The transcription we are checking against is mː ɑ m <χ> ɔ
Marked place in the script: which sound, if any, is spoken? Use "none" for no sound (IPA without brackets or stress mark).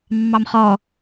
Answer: χ